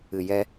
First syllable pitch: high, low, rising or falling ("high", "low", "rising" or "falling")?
low